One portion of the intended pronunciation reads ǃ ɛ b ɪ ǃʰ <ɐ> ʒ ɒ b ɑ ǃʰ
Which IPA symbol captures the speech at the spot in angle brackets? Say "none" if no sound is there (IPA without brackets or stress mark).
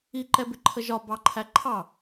ə